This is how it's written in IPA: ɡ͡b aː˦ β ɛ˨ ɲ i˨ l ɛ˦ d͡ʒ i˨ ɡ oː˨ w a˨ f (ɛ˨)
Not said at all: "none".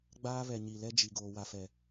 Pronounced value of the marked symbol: ɛ˨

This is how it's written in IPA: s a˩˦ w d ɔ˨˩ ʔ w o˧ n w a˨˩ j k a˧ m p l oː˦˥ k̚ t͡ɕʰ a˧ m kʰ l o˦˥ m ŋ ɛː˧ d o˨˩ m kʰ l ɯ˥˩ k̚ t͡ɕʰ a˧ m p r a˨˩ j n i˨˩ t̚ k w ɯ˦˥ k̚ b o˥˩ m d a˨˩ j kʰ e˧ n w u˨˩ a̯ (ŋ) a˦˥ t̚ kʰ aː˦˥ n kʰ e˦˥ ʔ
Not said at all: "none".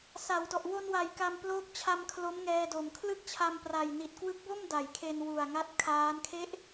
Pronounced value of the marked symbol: ŋ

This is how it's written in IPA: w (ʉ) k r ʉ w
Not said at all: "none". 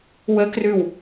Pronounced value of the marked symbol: ə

